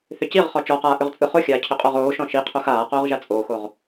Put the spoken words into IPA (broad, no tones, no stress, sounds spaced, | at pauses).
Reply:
θ ʏ c i ʁ χ ɔ t͡ʃ ɔ q aː ʔ ʏ ʁ t͡sʼ ɯ χ o xʲ aː cʰ ʏ qʼ ɔ ʁ oː ʃ ɔ̃ ʃ i qʰ o x aː q oː ʁ ʒ a t͡sʼ oː x o ʁ